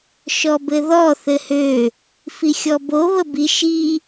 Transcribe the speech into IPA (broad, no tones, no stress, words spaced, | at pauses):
ʃɔbɘðɔ θɘhø | fixʲɔbo βəbi ʃi